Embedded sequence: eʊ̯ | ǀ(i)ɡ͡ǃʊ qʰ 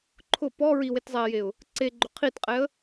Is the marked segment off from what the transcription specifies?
yes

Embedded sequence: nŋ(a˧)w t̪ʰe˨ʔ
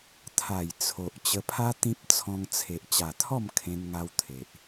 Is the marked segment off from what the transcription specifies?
no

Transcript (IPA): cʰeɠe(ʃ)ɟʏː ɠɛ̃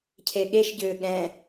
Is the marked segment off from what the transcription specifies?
no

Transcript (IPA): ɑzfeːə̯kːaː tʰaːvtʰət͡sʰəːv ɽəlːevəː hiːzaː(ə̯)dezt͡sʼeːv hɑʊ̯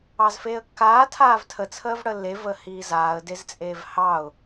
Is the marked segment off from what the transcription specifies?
no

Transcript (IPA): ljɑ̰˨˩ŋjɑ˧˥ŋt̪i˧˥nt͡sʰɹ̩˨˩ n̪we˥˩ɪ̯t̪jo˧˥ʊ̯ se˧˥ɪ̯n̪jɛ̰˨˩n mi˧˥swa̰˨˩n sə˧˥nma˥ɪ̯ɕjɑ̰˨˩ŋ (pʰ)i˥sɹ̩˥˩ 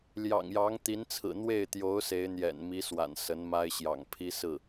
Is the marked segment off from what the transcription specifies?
no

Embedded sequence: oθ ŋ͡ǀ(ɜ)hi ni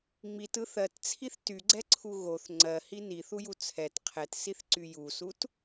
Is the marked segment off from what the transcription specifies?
no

